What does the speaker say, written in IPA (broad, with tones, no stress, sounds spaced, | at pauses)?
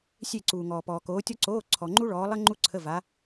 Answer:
sʲ e˥˨ ǀ uː˨ ŋ ɔː˨ p ɔː˨ k oː˨˦ tʲ ɔ˥ ǀ oː˧˥˧ ǀʰ ɔ˨ ŋ͡ǃ u˥ ɭ ɔː˨˦ lˠ ə˥ ŋ͡ǃ u˥ ǀʰ ə˧˥˧ v a˨˦